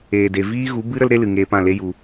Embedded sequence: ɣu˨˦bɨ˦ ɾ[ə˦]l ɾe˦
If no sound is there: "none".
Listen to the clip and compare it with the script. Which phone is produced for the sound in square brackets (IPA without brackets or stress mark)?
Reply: ə˦